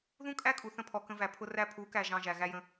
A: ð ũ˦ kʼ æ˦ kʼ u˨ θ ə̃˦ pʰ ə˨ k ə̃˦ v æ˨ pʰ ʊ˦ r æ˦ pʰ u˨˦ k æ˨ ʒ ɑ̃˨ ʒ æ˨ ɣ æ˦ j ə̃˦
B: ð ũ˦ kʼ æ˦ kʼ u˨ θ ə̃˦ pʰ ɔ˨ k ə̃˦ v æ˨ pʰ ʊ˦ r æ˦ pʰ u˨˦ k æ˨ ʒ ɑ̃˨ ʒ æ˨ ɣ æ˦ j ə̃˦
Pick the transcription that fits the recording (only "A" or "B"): B